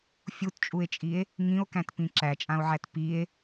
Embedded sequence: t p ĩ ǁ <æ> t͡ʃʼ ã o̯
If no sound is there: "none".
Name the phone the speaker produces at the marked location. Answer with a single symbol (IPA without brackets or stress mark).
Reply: æ